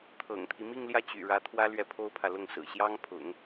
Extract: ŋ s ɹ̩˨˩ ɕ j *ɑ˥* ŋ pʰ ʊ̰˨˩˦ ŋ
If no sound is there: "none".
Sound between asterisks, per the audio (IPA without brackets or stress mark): ɑ˥